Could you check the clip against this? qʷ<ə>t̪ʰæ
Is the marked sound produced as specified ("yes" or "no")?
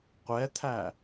no